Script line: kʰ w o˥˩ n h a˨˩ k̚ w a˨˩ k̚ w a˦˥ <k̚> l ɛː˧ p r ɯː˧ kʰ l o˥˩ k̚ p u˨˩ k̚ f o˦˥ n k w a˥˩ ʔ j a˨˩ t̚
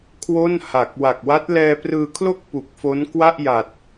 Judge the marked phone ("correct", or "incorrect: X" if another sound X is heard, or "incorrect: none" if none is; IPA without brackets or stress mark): incorrect: t̚